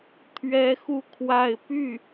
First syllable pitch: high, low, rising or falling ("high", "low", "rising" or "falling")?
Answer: high